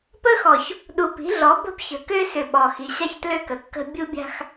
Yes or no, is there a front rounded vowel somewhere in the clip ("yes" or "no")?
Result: yes